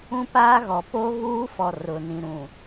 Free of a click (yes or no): yes